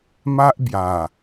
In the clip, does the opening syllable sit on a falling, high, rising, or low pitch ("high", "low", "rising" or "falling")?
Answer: high